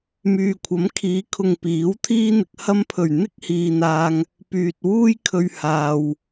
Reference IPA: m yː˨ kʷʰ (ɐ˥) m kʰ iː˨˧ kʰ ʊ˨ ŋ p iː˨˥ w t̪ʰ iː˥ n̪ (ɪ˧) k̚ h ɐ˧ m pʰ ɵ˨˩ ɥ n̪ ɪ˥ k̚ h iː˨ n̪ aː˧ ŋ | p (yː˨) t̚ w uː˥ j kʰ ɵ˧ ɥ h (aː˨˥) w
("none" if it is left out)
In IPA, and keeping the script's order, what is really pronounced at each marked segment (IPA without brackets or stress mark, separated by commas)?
ɐ˨˥, ɪ˧, yː˨, aː˨